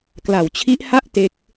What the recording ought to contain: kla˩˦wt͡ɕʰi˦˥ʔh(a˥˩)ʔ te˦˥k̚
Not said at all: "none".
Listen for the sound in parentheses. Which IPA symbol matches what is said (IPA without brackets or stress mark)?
a˥˩